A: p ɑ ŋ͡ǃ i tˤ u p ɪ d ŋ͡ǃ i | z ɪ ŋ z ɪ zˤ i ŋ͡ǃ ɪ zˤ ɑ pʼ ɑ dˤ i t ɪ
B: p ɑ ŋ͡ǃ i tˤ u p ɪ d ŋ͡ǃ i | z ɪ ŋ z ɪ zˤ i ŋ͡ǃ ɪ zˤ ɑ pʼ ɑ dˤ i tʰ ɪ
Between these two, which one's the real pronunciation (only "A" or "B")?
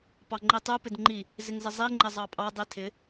B